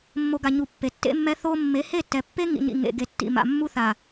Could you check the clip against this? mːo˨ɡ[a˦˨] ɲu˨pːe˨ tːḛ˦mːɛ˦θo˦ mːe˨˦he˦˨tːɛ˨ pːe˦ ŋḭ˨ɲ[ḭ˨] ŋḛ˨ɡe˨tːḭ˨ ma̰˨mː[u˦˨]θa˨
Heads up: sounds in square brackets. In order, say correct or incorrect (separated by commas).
incorrect, correct, incorrect